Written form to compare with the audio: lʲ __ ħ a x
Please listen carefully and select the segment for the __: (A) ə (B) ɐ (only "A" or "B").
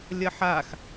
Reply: B